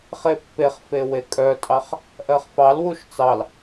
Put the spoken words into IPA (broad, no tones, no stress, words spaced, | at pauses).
χepːeχfe wekʼœtʼɑχ | ʔɜχfɑlwuʃ t͡sɑl